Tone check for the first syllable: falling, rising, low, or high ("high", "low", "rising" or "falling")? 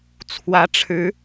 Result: rising